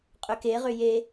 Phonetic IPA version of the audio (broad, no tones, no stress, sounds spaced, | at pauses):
qʼ ʏ k e ʁ ʏ j e